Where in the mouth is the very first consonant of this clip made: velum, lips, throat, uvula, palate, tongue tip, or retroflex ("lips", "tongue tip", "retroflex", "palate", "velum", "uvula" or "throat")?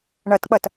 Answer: retroflex